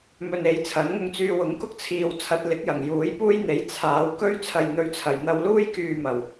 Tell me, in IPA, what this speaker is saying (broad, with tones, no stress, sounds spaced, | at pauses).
m ɵ˧ n e˨˥ j t͡sʰ ɐ˨˥ n ŋ ʊ˧ ŋ t͡s yː˧ w ʊ˨˥ ŋ k ʊ˥ k̚ t͡sʰ iː˨ w t͡sʰ ɐ˨˥ t̚ l ɪ˨˥ k̚ j ɐ˨˩ ŋ j uː˨˥ j p uː˥ j n̪ e˨˥ j t͡sʰ aː˨˧ w k ɵ˥ ɥ t͡sʰ ɐ˨ j n̪ ɵ˨˧ ɥ t͡sʰ ɐ˨˩ j n̪ ɐ˧ w l uː˥ j k yː˨ m ɐ˨˩ w